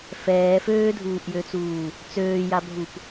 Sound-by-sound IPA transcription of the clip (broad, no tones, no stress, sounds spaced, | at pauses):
f ɛː f øː dʱ uː ʔ j ø t͡s uː | t͡s øː j a bʱ u p